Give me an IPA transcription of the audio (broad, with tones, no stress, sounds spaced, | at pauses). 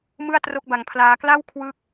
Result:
m ɯ˥˩ a̯ t r o˥˩ k̚ b a˧ ŋ pʰ l aː˦˥ k l a˥˩ w kʰ w ɯ˦˥ k̚